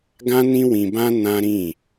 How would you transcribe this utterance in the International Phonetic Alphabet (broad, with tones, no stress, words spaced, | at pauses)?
ɡã˦nĩ˦wĩ˧bã˦ nã˦ɾĩ˦˨